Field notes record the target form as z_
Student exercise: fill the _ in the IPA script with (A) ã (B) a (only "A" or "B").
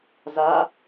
B